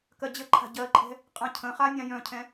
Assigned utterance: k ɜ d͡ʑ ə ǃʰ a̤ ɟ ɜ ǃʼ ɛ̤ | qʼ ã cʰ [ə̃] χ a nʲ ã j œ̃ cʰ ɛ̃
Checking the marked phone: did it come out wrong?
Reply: no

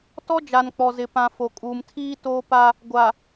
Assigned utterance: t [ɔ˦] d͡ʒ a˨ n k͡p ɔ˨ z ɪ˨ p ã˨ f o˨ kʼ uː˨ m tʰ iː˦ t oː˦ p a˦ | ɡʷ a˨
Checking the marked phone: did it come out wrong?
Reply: no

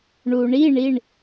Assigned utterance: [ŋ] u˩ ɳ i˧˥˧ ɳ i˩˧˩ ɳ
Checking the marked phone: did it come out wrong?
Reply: yes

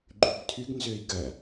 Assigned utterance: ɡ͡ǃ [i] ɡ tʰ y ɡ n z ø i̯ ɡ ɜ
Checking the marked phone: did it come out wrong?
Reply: yes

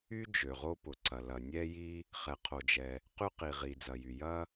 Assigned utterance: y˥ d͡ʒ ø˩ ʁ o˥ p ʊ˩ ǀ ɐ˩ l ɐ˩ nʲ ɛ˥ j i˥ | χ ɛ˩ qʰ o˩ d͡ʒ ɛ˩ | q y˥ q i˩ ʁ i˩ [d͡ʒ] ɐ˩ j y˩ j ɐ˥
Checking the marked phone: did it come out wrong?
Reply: yes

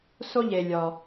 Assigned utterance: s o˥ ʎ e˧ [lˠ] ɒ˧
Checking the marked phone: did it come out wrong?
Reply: yes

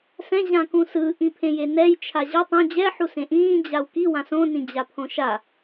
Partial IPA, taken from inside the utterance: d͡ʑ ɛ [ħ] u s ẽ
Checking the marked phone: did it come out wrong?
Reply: no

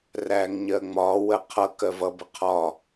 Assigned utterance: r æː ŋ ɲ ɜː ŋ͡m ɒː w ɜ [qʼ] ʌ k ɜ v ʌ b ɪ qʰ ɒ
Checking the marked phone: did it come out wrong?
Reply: yes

